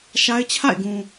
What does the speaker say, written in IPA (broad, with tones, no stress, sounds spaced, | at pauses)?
ʃ a˦ ɪ̯ t͡ɕʰ a̰˦˨ ɪ̯ ɡ ũ˨